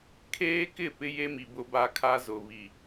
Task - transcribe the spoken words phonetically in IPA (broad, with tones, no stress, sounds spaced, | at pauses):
kʰ eː˦ k ɪ˦˨ p ɪ˦ j e˦ m i˨ b ʊ˦ b a˦ kʰ a˦ z ʊ˨ β i˨